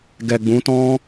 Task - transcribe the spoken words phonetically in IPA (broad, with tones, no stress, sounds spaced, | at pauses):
ɡ ɛ˨ ɡ͡b ũ˨˦ t ɔ̃˦